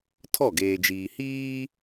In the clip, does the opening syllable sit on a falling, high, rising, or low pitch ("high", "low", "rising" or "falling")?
falling